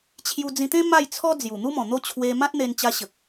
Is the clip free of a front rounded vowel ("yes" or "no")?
yes